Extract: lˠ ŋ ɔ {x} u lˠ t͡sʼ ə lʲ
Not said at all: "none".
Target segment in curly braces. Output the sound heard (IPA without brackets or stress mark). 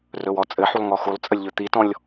x